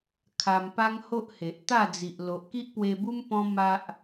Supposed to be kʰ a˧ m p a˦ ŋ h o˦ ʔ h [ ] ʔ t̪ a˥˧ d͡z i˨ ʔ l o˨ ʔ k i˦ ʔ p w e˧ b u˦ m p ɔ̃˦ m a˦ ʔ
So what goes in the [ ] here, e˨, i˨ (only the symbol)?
e˨